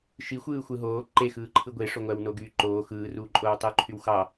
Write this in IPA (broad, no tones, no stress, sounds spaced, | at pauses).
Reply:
ʃ i xʷ ɯː xʷ ɯ ɦ oː ǃ e x ɯː ǃʰ ɯ ɡʷ e ʂ o ŋʷ æ w n o ɡ yː ǃ oː x ɯː r uː ǃʼ oː w tˤ yː ǃʰ y w x ɑ